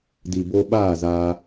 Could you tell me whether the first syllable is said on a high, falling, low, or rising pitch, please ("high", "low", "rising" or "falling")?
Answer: low